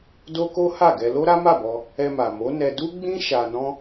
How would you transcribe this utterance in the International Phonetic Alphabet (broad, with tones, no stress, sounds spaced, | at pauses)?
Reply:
d o˦ k o˦ h a˦˨ ɡ ɛ˧ l o˦ ɾ a˦ m a˦˨ b ɔ˧ | ɛ˧ m a˨ m o˨˦ n ɛ˧ d u˦ ɡ͡b ĩ˦ ʃ a˧ n ɔ̃˦